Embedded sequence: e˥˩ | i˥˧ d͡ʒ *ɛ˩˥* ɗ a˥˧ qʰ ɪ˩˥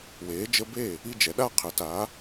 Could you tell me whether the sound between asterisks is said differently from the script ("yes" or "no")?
no